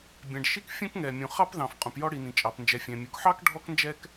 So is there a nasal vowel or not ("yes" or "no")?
yes